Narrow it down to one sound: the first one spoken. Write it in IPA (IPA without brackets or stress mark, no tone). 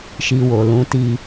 ʃ